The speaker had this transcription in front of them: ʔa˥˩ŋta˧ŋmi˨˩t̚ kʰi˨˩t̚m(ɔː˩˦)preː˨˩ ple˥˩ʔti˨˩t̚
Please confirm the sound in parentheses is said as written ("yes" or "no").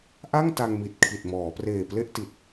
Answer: yes